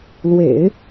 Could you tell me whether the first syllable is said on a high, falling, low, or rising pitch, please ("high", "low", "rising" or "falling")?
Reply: low